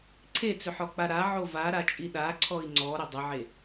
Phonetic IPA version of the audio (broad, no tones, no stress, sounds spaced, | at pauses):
ǀʰ e t͡s ʏ ħ ɔ k͡p a ɾ a ʕ o v a ɾ a t͡ʃʼ i ɗ a ǀʰ ɔ i̯ ŋ͡ǀ ɔ ɾ ʏ dˤ ʏ ʕ e